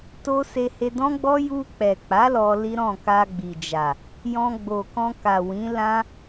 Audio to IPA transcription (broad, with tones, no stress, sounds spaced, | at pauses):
t o˦ s e˧ h e˧ d ɔ̃˦ ɡ͡b ɔ˦ j u˧ k͡p ɛ˨ k͡p a˨˦ l ɔ˧ l i˦ ɾ ɔ̃˦˨ k a˧ ɡ͡b i˨ d͡ʒ a˨ | j ɔ̃˧ ɡ͡b o˨ k ɔ̃˧ k a˨ w ĩ˨˦ l ã˦